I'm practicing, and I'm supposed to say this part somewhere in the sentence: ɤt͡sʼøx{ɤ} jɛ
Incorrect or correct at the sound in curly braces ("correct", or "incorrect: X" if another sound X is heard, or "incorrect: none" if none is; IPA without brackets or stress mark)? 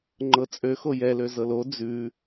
incorrect: o